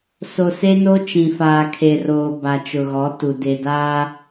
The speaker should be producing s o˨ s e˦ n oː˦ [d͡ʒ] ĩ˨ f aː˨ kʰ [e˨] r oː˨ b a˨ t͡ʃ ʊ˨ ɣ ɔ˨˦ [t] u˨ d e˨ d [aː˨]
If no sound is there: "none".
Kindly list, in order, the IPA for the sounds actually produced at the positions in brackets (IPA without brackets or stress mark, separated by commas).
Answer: t͡ʃ, e˨, t, aː˦